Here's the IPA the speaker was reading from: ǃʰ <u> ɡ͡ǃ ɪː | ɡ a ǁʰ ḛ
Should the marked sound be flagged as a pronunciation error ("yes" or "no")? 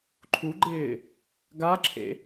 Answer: no